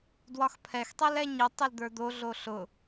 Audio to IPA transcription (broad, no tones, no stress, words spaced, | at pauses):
dwɒxpʰɛx tˤɛlɛɲi tˤild̪ə˞d̪o ɮoɬʊ